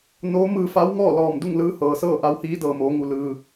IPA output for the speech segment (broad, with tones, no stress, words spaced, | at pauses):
noː˧˥ mɯː˧fa˧˥wŋɔː˥˨ lɔː˧˩mdu˥˨ŋlɯː˧ hɤː˩sɤː˥˨ʔa˧˥w hiː˧˥dɤː˩moː˩˧ŋu˩ lɯː˩